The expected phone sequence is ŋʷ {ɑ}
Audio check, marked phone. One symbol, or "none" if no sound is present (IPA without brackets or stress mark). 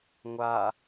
a